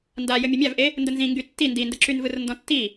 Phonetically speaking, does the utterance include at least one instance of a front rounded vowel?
yes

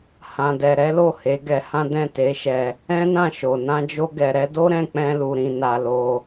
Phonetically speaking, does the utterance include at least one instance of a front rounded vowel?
no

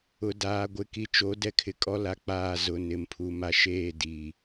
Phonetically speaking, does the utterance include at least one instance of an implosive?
no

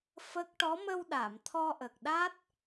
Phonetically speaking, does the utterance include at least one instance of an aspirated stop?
yes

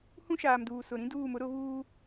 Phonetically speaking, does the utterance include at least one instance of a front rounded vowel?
no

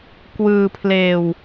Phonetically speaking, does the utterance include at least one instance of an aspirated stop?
yes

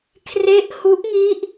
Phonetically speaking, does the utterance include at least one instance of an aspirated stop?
yes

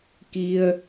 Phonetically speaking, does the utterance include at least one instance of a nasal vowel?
no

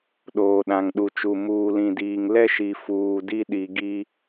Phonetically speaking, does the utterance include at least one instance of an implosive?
yes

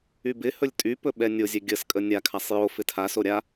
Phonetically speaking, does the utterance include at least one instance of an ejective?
yes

